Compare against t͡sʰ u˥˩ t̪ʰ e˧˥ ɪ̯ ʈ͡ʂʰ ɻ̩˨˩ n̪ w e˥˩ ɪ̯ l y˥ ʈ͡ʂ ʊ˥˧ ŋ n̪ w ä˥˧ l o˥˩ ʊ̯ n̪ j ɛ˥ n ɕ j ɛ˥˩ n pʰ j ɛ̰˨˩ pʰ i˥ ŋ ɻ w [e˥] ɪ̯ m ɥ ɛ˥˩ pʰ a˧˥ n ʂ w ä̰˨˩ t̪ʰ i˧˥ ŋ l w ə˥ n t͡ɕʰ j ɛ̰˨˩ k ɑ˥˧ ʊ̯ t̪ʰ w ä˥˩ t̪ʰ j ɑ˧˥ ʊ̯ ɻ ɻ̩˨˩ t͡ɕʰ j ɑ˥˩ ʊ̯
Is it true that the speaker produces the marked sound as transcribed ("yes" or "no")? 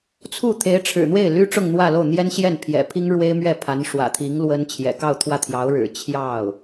yes